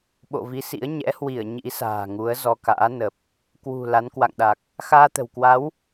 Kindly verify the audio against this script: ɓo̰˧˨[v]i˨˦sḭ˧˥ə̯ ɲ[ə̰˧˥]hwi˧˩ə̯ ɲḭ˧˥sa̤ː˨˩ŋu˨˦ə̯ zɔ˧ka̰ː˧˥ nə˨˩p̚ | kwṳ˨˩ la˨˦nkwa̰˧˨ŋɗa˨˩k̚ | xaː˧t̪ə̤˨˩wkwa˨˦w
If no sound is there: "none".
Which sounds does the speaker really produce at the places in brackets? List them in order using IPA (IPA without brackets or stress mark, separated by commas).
v, ɛ̰˧˥